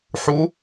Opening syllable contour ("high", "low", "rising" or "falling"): rising